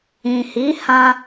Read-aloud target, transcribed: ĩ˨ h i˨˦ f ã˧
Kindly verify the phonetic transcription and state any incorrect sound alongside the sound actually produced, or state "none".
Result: f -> h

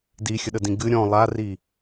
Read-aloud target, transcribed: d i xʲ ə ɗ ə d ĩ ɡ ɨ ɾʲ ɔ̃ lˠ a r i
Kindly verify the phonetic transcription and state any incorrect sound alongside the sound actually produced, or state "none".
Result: none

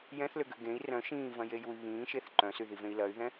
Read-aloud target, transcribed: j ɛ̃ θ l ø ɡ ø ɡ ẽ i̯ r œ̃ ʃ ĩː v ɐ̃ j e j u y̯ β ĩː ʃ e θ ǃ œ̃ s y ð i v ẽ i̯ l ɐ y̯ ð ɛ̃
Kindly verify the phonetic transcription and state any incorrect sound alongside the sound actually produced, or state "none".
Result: none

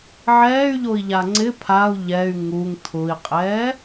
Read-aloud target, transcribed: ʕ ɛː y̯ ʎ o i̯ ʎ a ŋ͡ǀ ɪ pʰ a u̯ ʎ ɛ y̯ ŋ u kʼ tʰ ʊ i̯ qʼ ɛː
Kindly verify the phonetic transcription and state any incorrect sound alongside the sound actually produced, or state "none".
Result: kʼ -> ŋ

